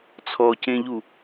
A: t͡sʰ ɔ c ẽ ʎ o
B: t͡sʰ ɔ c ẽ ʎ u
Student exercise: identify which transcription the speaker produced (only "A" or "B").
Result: B